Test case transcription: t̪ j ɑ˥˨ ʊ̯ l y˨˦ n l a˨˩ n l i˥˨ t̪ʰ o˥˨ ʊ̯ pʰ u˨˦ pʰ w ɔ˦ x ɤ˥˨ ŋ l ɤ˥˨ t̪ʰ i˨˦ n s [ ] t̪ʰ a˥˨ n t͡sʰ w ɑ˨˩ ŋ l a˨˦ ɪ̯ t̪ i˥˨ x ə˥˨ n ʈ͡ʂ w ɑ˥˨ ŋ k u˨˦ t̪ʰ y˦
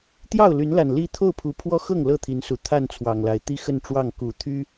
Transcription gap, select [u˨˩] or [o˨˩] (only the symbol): u˨˩